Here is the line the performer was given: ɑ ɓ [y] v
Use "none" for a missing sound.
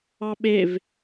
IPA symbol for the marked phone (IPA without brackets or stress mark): e